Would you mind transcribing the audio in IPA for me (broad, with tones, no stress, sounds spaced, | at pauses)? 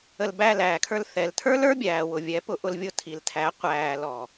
ə˧ l b æ˦˨ l æː˨ kʰ ə˞˧ l θ ɛ˨ l tʰ ə˞˦ l ə˞˦ bʲ æː˨ w ʊ˨ vʲ ɛ˨˦ p ʊ˧ ʔ ʊ˧ l vʲ ʊ˧ tʰ i˨ l tʰ æ˨˦ qʷ æː˧ l ɔ˨